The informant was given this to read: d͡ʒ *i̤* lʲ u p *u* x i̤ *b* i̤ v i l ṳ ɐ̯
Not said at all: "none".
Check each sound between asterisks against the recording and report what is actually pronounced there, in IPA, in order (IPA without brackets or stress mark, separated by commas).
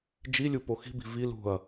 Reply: i, o, b